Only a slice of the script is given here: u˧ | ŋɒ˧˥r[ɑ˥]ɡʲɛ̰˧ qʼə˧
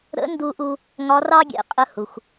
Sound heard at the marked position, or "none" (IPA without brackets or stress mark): ɑ˥